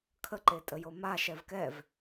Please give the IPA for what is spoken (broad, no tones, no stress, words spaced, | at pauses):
kʰəǃetʼəjo ma ʃɛvkɛv